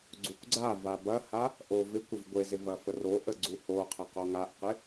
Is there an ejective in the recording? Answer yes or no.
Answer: no